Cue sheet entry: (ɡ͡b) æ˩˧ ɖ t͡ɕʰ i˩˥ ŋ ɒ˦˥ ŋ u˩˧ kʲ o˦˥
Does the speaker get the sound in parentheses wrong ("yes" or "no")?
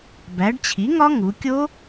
yes